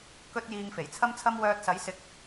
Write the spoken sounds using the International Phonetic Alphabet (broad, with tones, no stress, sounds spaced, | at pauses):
k ɵ˥ t̚ j iː˧ ŋ f e˨˩ j t͡sʰ ɐ˥ m t͡sʰ ɐ˥ m w œː˧ t̚ s ɐ˨˥ j s ɪ˨˥ k̚